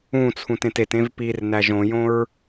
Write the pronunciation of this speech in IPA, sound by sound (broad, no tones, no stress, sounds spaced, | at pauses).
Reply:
ũ t͡sʰ ũ t ẽ t e t ẽ v p i r n æ ʒ õ j õ ɹ